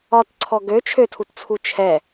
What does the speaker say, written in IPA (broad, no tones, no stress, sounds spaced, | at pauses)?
ɒ t ǀʰ ɔ ɡ ø t͡ʃʰ ø tʰ u t t͡sʰ u t͡ʃʰ ɛ